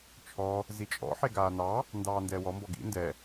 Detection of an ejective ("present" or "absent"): present